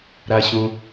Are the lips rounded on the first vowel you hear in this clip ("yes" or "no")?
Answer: no